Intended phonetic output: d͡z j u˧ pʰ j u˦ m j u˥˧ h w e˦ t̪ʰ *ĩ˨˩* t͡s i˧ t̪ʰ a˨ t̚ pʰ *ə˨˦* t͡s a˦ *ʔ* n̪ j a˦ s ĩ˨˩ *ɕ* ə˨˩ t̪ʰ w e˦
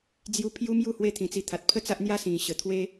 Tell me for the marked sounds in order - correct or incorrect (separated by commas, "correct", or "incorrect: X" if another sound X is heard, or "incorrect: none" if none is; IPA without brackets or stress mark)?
correct, incorrect: ə˥˧, correct, correct